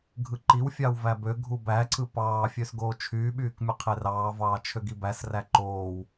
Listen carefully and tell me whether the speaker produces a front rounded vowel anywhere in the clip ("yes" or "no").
yes